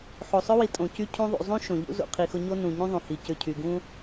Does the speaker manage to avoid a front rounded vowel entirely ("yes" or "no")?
no